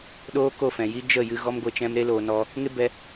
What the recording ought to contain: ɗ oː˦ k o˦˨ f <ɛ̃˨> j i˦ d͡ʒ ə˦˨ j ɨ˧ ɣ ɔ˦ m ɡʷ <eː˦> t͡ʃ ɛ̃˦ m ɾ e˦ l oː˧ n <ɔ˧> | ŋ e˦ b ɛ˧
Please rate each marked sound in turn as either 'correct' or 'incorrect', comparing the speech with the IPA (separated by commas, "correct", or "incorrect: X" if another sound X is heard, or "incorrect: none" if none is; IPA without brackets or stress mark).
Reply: correct, incorrect: e˦, correct